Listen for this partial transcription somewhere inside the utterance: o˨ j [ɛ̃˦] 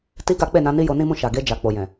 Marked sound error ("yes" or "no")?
yes